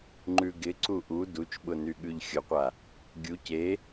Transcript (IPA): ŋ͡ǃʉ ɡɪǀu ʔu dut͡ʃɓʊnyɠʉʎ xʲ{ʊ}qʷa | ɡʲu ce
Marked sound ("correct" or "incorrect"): correct